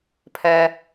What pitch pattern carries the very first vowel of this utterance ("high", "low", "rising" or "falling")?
low